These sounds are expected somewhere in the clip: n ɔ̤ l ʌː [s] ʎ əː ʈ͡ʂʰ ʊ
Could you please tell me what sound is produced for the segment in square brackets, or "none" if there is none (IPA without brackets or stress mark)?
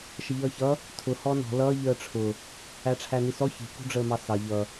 none